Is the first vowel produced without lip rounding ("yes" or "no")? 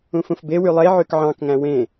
no